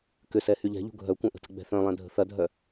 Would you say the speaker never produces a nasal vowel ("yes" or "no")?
no